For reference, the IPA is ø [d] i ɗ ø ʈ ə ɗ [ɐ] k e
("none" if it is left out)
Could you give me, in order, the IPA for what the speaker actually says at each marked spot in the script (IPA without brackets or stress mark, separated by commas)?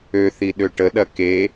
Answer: θ, ɐ